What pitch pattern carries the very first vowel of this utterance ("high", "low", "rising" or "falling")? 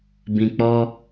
low